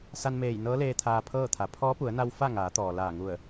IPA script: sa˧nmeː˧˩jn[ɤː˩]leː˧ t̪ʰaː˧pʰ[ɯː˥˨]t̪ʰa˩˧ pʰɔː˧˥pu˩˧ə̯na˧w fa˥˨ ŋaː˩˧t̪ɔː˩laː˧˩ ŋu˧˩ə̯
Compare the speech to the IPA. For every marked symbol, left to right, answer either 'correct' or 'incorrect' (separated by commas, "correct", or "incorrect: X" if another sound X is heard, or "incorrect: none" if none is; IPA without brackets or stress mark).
incorrect: ɤː˧˥, incorrect: ɤː˥˨